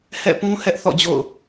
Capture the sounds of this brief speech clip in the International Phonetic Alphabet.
h ɛ̰˦˨ p ũ˦ h ɛ˦ ʔ θ ɔ̰˦˨ d͡ʑ o̰˦˨ ʊ̯

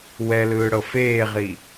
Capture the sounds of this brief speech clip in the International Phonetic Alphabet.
w ɛ l ɯː ɽ ɤ f eː ʁ i

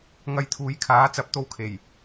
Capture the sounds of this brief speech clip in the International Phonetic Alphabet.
ŋ ɐ˧ j t̪ʰ uː˨˧ j kʰ aː˨˥ t͡s ɐ˨˥ p̚ t̪ o˧ w kʰ e˨˩ j

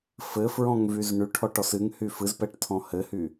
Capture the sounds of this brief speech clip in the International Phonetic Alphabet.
f ɘ f ɹ ɔ̃ ŋ v y z ɳ y ʈʰ ɔ ʈ ɔ s ɨ ŋ h y f ɨ z p ɛ ʈ tʰ ɔ̃ h ɘ h y

